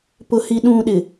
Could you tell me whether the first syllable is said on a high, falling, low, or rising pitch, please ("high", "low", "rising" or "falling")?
low